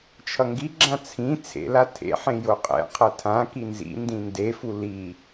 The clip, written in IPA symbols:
t͡ʃʰʌŋɡiɡ͡ǁã t͡sʰĩ t͡sʰḛla tʰḛħẽ joqʼɛ̰qʰʌ tʰã kinzḭndĩ ndefu li

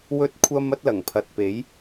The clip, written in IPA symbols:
wɵ˥t̚kʷʰɐ˥m ɐ˥t̚lɐ˨˩ŋpʰɐ˨t̚pe˨˥j

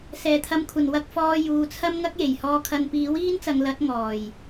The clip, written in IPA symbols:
sɛː˨˩t̪ʰɐ˨˧mkʷʰɐ˨˩nwɐ˧k̚ fɔː˨ juː˨t͡sʰɐ˥m ŋɐ˥k̚je˨˩jhɔː˧kʰɐ˧n piː˨˥wiː˥nt͡sɐ˨˧ŋ lɐ˨˥t̚ ŋɔː˨˩j

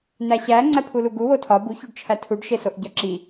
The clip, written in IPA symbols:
n̪æɕæ ŋ͡ǀæpʰuluɡu wotʰɒ buçoɖt͡ʃʰæ tʰuɖʃesoʔ ɟɒǁi

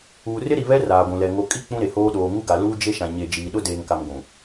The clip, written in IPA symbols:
uː˨rɪ˦ɾi˨ βɛ˦ raː˨ɡʷũ˨lɛ˨ ŋo˨kʼi˦ k͡pũ˦ɾe˨hoː˦ ɗoː˨ŋu˦ɡa˨ luː˦d͡ʒe˦ʃã˨ ɲe˨ d͡ʒiː˨ɗʊ˦deː˨ŋka˨m ɡʷũ˨

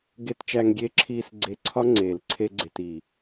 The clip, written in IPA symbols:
ɡe˧tt͡ʃæ˧ŋ ɡʲe˧ǁʰiː˧s ɡ͡ǀe˧ ǀʰɒ˦ŋ͡ǀeː˨l ǀʰe˦ɡ͡ǀe˧t i˨

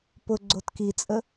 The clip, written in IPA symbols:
pʊ ɡ͡ǀotkit͡sʼə

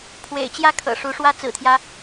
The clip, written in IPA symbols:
pʰwḛ˨˩ɪ̯t͡ɕjä˥˩ kʰɤ̰˨˩ʂu˧˥ʂwä˥ t͡sɹ̩˨˩t̪ʰjä˦

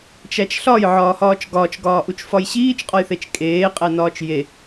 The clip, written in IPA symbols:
t͡ʃæt͡ʃɬɒj ʕɒːhɒːt͡ʃɡɒːt͡ʃ ɡɒːʔut͡ʃfɒjɕiːt͡ʃ qʼɒjθet͡ʃkʼeː qʼænɒːt͡ʃje

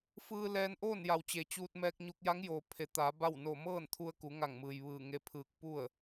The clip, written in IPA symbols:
fɯː˧lɛː˧nʔoː˥˨n ja˩wt͡ɕe˩t͡ɕuː˧t̚ mɛː˧k̚ɲu˧k̚ ja˧˥ŋjoː˩ pʰe˩˧t̪aː˩˧ ba˥˨w no˧˩mɤː˥˨nt̪ʰu˧ə̯ ku˩˧ŋa˧˩ŋmɯː˩j ʋɯː˧˩ŋe˧pʰɯː˧˩k̚ pu˥˨ə̯

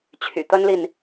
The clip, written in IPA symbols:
t͡ɕʰy̰˨˩t̪ə˥nli˨n

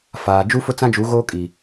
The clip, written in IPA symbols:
faː˨ d͡ʒu˦fʊ˦t͡sã˦d͡ʒu˨˦ ɣoː˦kʼi˨

